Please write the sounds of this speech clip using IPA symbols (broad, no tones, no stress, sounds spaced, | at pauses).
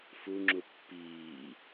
f u ŋ͡ǁ u pː iː